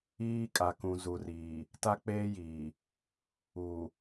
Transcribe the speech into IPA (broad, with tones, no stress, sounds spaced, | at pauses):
iː˦ kʼ a˨ k ũ˨ z u˨ r iː˨ | t a˦ k͡p eː˦ j iː˨ | uː˨